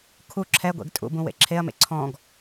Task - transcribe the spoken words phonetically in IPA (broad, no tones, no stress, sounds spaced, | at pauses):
kʰ u ǁʰ ɛ ɡʷ ḛ ɡ tʼ ṵ b ũ w ḛ ǁʰ e ɐ̯ m ḛ ǀʰ ɔ̃ ɡ